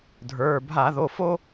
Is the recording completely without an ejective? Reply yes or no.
yes